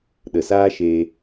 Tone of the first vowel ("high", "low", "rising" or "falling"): low